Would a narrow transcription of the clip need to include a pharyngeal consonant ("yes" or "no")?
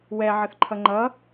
yes